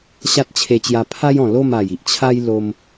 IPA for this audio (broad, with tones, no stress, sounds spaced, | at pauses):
ɕ a˦ t̚ t͡ɕʰ e˧ t͡ɕ j a˧ pʰ a˦ j ɔ̃˨˩ l o˥˧ m a˨˩ j i˨ ʔ t͡ɕʰ a˦ j l o˧ m